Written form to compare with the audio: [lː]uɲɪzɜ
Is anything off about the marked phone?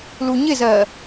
yes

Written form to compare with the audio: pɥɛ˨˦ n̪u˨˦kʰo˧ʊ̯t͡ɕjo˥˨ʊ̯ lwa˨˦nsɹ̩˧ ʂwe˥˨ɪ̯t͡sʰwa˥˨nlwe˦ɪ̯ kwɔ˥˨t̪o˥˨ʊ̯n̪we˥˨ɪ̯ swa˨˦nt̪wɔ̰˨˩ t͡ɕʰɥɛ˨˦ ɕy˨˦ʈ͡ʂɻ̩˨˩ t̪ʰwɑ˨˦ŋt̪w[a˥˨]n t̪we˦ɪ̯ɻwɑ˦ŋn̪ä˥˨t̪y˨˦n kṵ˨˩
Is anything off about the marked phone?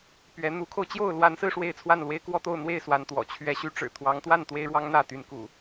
no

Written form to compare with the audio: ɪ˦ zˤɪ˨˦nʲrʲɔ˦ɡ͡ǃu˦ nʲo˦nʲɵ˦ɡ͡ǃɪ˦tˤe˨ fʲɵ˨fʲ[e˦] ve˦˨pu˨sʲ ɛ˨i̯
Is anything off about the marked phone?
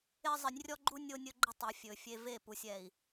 no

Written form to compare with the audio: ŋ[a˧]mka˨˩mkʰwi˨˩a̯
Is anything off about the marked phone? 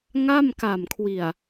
yes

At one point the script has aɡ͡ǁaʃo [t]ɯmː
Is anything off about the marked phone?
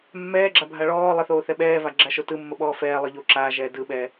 no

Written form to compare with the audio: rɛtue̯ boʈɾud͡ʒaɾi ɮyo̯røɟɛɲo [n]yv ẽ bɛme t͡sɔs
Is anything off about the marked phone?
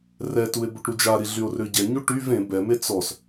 yes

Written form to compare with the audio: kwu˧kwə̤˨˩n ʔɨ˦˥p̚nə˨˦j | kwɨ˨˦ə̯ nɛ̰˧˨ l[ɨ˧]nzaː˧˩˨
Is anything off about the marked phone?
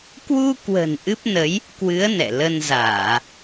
yes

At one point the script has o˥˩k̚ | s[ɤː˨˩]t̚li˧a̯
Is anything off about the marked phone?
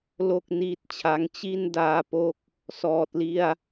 yes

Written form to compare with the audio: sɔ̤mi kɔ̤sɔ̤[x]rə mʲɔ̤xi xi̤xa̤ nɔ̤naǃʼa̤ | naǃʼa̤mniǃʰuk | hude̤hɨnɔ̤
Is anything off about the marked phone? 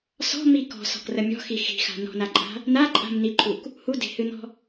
yes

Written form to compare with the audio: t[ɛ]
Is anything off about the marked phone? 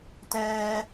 yes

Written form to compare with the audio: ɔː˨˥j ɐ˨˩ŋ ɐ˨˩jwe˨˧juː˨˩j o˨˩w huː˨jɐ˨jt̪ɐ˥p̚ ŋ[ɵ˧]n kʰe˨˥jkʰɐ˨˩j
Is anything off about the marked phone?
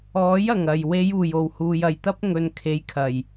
yes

